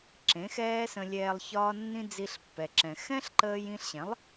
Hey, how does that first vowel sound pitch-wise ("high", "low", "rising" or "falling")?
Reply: rising